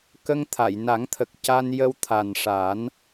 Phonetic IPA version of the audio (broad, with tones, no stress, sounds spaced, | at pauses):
k ə˧ ŋ t̪ʰ a˨˩˨ j n a˨˩˦ ŋ t̪ʰ ə˨˩ k̚ c a˧ n j ə˧ w t̪ʰ a˨˩ n ʂ a˨˩˦ n